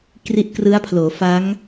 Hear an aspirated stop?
yes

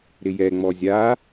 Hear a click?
no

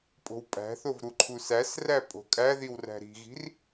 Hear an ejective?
yes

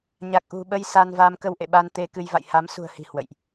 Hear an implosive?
yes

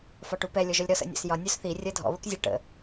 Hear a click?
no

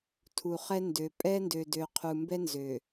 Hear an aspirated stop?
yes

